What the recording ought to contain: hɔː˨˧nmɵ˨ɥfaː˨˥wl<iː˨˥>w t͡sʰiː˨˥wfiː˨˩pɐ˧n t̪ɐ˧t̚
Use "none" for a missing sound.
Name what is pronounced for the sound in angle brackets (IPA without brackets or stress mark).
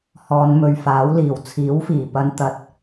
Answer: iː˨˩